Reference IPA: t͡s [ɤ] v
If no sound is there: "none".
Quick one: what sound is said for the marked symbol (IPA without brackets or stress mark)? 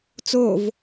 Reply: o